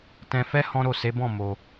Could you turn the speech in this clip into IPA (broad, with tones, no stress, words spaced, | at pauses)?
tɛ̃˧fɛ˦ hɔ̃˦ɾo˦˨ se˨˦bɔ̃˦˨ mo˧